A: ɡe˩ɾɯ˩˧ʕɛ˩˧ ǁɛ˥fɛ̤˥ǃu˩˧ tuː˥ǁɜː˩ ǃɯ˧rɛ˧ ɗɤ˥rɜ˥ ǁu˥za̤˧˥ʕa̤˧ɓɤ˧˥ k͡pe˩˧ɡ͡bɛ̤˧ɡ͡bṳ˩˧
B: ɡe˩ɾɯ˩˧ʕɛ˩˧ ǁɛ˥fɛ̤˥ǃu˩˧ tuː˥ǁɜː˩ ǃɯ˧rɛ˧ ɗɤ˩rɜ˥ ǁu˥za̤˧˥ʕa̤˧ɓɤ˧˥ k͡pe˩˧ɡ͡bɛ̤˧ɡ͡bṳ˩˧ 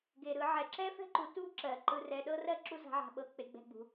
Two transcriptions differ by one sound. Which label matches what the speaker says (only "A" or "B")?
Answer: A